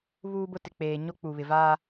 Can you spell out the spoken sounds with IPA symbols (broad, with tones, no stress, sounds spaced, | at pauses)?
β uː˦ b ʊ˦ t ɪ˨ k͡p eː˨ ɲ o˦ k͡p u˨ β ɪ˨ v aː˦